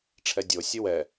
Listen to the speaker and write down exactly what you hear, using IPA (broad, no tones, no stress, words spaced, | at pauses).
ʈ͡ʂʰɛdʲo sʲɨwɛ